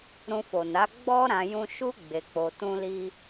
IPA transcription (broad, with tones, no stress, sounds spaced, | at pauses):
ɾ ũ˧ f o˨ n a˨˦ ɡ͡b ɔ˦ ɾ ã˧ j ũ˦ ʃ u˦ ɡ͡b e˧ k͡p o˧ t ũ˦ l i˦